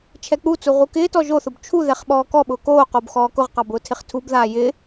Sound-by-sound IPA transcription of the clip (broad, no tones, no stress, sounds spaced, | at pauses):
t͡ʃʰ ɛ k͡p u t͡s u ʁ u k ɪː t ɔ ʒ o θ ʊ b t͡ʃʰ u ð ɛ χ ɓ ɔː k ɔ ɓ ʊː k oː q o b x ɔː k ʊ ʁ q ɑ b ʊː tʰ ɪ χ tʰ u b ð aː j ɪ